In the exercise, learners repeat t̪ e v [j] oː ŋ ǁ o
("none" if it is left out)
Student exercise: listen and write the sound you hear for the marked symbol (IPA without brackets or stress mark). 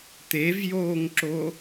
j